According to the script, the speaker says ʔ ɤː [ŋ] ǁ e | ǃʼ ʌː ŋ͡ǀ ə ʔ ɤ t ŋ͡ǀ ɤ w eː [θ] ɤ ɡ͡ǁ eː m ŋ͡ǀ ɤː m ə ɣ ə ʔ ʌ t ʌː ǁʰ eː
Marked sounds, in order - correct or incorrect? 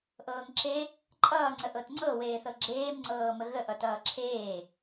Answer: correct, correct

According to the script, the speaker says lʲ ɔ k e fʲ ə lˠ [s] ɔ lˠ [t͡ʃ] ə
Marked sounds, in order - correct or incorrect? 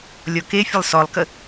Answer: correct, incorrect: k

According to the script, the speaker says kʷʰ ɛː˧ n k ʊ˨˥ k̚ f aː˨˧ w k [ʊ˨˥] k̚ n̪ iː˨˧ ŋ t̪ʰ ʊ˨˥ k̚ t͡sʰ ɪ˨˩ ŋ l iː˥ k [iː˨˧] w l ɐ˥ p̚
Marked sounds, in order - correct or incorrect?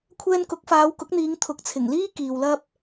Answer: correct, incorrect: iː˨

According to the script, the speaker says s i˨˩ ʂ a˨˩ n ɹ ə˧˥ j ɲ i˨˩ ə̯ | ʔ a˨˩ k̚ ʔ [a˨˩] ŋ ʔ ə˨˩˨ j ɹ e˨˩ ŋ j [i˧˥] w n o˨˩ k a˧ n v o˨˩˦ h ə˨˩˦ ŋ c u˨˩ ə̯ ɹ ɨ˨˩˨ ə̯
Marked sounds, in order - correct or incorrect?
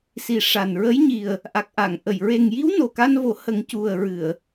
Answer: incorrect: a˨˩˨, correct

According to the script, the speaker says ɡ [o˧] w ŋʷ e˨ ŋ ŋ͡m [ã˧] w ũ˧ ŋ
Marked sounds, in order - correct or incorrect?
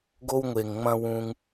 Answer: correct, incorrect: ɐ̃˧

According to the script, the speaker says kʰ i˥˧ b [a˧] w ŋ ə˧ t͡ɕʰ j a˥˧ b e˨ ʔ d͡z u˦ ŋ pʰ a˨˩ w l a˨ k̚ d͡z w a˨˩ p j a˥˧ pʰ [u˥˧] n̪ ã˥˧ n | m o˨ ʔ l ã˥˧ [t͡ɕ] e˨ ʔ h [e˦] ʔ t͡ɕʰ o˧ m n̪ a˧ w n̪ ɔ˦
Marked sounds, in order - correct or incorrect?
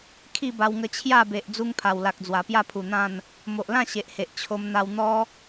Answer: correct, incorrect: u˨˩, incorrect: ɕ, incorrect: e˨

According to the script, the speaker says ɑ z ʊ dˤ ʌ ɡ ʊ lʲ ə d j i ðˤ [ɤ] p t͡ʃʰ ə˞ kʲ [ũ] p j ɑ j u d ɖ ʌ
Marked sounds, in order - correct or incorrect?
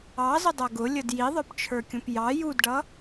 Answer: incorrect: ə˞, correct

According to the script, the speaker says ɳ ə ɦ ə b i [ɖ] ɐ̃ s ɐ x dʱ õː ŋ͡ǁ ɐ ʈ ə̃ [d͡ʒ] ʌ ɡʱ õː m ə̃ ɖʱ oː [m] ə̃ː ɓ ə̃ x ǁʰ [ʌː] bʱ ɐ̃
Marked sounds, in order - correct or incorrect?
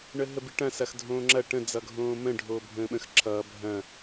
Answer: incorrect: ʈ, incorrect: d͡z, incorrect: bʱ, correct

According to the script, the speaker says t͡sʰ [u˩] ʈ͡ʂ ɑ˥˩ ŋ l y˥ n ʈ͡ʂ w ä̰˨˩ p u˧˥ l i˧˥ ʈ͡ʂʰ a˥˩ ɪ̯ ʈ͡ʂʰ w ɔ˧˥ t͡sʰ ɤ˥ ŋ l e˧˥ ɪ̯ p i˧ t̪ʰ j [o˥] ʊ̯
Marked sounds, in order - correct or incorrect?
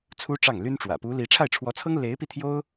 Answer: incorrect: u˥, correct

